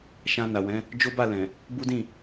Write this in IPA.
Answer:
ʃã˧na˨wɛ̃˨˦ | d͡ʒo˦ba˦˨lɛ̃˨ | bu˦dĩ˦˨

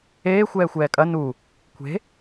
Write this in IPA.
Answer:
eː xʷɛːxʷɛːkʼɐ nu | kʷʰe̤

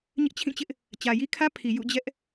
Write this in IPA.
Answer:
ɲɪ˦ʔt͡ɕʰĩ˦˨t͡ɕɪ˦ʔ | t͡ɕä˨ji˦kʰä˦pʰi˨ jṵ˦˨d͡ʑɛ˦ʔ

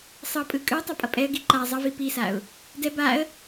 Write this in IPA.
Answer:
sˤʌ pʼɯkʼɯtˤʌ pʼʌpʼɛə̯ɡi ǃa zˤʌvi pisaʊ̯ | dɛ baə̯

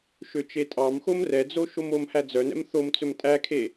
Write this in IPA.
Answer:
ʃøt͡ʃetʼɑmxom rɛd͡zo ʃomomhæ d͡zœnɛ̰m θom t͡sɵmtʼækʰe

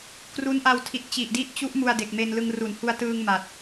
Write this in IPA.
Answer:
kru˦˥nʔa˧wtʰi˨˩t̚ t͡ɕi˨˩ʔdi˦˥ʔt͡ɕu˦˥ʔ mu˧a̯de˨˩k̚me˧nlɯ˧ŋ ru˩˦nhu˧a̯tɯː˧ŋ ma˨˩t̚

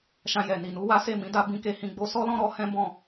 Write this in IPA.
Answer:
ʃã˧jɛ˨ni˨nu˨˦ wa˦ se˦˨mĩ˨˦da˧ bĩ˦ke˦˨ hĩ˧ɡ͡bo˧sɔ˦lɔ̃˦ ɾɔ˦ hɛ̃˦bɔ̃˦˨

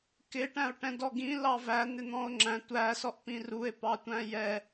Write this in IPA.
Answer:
kɪʈæ̃o̯ʈɛ̃ dɔɡĩ lɑvæ n̪ɪn̪ɔ̃o̯ŋ͡ǁæ̃ tʷæsɔʔpĩ rue̯pɑ tʷæ̃jɛ

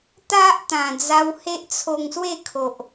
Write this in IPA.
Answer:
t̪a˦ʔt̪ã˨˩d͡za˧w he˦ʔt͡sʰo˧ŋswe˥˧ kʰo˨ʔ

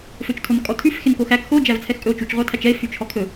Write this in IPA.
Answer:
føt͡ʃtʰonkʼɔtʰʉf xenkoxæk xo d͡ʒævt͡sʰɛxkʼɵo̯t͡ʃut͡ʃ ʁʷɑtʰæt͡ʃɛe̯ fyt͡ʃʰɔkʰɵ

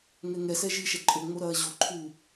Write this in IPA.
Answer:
ŋɛŋɛsɛ ʒiʃɛ ǃʼoŋ͡mo ɾɐːʑoǃʰuː

